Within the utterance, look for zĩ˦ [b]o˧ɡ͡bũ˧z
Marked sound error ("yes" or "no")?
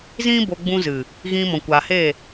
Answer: no